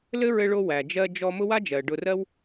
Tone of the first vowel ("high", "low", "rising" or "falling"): high